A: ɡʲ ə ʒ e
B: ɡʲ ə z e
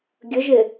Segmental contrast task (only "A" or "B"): A